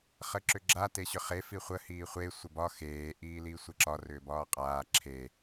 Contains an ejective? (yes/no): yes